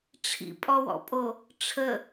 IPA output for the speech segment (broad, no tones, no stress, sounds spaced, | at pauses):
ʈ͡ʂʰ ḭ pʼ ɔ w ɔ̰ pʼ o | ʈ͡ʂʰ ə